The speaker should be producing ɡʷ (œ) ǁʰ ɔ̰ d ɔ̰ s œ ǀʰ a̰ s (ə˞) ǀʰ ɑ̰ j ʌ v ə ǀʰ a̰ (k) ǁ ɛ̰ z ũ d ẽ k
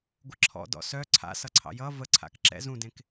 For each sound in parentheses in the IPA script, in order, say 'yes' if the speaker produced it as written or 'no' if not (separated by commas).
no, no, yes